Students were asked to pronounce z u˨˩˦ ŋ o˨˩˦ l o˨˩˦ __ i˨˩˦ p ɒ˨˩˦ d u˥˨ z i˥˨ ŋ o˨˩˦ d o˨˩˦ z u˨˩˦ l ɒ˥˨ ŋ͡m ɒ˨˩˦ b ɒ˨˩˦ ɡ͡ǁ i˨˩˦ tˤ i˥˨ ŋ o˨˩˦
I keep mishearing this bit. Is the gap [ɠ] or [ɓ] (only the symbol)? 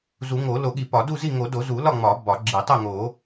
ɠ